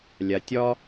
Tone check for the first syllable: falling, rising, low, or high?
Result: low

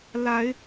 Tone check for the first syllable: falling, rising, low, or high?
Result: rising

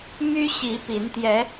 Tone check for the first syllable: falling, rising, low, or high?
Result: high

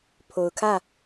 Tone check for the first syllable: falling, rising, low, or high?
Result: low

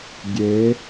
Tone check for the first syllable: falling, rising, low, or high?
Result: rising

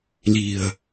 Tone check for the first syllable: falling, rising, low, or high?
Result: low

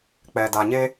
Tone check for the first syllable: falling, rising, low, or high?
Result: low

